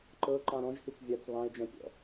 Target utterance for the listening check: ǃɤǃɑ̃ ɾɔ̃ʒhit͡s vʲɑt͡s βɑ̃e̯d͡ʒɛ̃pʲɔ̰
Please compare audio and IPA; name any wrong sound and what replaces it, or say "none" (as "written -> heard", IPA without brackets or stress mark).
none